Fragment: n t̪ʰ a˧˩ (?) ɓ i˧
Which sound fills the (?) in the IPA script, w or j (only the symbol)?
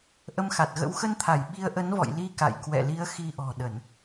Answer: j